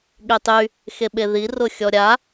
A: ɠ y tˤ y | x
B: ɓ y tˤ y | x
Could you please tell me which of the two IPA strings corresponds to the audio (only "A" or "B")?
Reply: A